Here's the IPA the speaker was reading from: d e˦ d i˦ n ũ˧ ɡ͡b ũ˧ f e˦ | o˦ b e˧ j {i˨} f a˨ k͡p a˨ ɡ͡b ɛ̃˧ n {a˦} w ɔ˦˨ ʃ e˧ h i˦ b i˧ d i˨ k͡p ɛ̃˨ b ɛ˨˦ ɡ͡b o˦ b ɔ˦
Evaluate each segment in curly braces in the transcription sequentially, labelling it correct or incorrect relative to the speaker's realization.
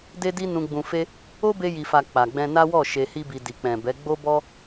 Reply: correct, correct

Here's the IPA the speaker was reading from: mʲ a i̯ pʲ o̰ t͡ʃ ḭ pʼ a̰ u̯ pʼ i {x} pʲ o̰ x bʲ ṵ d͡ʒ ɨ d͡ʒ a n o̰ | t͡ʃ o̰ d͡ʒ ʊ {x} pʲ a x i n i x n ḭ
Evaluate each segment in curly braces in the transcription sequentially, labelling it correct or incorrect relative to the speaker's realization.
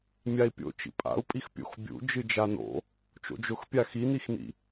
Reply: correct, correct

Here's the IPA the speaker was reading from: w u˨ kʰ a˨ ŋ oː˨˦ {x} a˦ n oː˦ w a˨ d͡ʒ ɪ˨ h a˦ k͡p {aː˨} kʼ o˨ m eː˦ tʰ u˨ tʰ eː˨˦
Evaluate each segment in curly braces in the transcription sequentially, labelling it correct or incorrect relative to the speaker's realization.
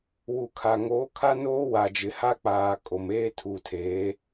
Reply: incorrect: kʰ, correct

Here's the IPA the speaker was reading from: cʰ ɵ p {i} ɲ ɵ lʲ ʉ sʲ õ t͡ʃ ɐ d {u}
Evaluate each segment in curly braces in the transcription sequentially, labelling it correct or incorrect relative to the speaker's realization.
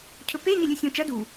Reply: incorrect: e, correct

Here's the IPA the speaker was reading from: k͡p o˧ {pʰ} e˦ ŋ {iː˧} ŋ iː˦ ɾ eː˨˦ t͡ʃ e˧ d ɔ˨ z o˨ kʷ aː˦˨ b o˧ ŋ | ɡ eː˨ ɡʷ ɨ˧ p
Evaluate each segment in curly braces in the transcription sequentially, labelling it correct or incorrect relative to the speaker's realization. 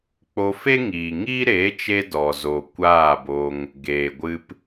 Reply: incorrect: f, incorrect: iː˨

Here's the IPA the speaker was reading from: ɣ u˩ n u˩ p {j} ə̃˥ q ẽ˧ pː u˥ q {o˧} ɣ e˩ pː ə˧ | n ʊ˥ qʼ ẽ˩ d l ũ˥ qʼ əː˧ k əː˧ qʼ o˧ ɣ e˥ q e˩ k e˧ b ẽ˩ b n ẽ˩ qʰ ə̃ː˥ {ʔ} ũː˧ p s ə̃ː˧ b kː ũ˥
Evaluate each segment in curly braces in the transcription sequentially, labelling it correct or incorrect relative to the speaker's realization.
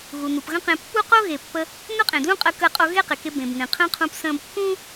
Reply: incorrect: ɣ, incorrect: o˥, incorrect: qʰ

